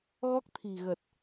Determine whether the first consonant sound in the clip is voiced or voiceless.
voiced